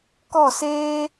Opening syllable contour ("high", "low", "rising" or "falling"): falling